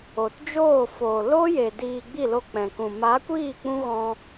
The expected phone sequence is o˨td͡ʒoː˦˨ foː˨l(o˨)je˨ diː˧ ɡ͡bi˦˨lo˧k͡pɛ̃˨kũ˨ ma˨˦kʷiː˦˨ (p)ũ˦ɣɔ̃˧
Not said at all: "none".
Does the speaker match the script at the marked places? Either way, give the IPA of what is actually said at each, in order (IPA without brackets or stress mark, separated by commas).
o˦, k͡p